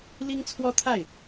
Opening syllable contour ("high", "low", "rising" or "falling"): high